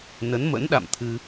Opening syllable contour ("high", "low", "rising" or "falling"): rising